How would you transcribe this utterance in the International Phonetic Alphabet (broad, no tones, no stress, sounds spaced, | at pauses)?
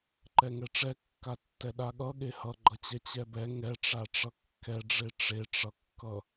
ǃ ɛ ŋ ɛ ʈ͡ʂ ɛ kː a tː ɛ ɗ a ɠ ʌ ɠ e h ʌ ɡ͡ǃ ʌ t͡ɕ ɛ t͡ɕ ɛ b ɛ ŋ ɛ ʈ͡ʂ a ʈ͡ʂ ʌ kː ɛ ɖ͡ʐ e ʈ͡ʂ e ʈ͡ʂ ʌ kː ʌ